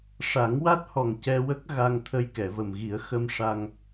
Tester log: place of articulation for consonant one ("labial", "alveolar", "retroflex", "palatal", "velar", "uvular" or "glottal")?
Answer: retroflex